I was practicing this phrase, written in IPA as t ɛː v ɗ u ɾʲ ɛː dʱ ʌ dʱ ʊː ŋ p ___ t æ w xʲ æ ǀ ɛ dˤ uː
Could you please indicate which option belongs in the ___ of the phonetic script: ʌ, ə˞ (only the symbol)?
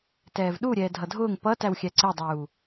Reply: ʌ